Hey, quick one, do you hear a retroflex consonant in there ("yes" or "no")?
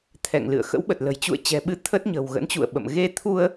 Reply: no